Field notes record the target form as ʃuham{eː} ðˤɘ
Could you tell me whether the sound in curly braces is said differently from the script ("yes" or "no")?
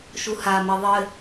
yes